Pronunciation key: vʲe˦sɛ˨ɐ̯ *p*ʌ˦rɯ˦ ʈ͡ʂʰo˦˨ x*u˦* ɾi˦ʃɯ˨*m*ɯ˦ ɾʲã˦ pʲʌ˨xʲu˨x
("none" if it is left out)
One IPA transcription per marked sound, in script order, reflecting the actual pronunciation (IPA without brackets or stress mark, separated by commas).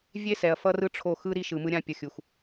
f, ɯ˦, m